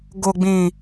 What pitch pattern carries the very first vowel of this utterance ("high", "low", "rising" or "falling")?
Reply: low